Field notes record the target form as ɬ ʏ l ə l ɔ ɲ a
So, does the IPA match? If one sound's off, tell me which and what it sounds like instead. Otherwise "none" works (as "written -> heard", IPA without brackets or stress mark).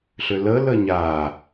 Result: ɔ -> ə